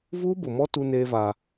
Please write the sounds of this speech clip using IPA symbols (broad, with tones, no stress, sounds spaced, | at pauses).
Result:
v uː˦ b ʊ˨ m ɔ˦ t u˦ n eː˦ v aː˦